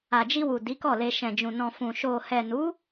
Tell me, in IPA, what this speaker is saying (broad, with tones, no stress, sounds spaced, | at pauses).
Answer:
a˨ d͡ʒ i˧ w u˨ d i˨˦ k ɔ˦˨ l e˧ ʃ ɛ̃˨ d͡ʒ ũ˨ n ɔ̃˨ f ũ˨ ʃ o˨ h ɛ˨ n u˨˦